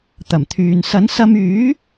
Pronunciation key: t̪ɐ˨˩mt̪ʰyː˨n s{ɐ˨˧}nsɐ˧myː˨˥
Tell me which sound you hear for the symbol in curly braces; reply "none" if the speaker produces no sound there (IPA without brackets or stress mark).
ɐ˨˥